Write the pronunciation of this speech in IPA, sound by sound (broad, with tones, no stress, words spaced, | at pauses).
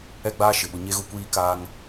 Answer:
ɛ˦ɡ͡baː˦ ʃɪ˨ɓʊ˨ ɲe˦ɣʊ˦ kʷiː˦ kaː˦ŋ